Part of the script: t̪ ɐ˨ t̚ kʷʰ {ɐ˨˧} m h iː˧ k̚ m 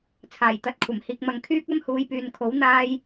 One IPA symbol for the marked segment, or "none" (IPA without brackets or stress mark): ɐ˨˩